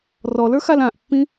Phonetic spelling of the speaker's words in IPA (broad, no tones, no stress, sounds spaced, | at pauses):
r ɔ l ə˞ x a l ã ʔ pː ĩ